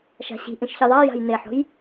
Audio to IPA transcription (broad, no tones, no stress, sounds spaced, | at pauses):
ʃ a̤ ɕ i̤ ʔ ĩ ʃ ç i ðˤ a j a̤ j n e ħ o̤ j